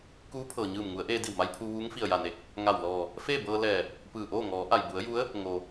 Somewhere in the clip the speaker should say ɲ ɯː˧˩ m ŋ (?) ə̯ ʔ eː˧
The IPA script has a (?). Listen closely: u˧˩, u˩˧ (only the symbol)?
u˩˧